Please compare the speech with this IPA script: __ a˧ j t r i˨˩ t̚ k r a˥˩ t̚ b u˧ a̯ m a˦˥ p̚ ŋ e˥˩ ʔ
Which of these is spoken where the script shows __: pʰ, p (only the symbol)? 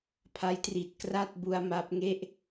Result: pʰ